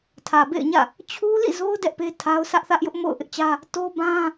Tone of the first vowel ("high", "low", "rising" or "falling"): low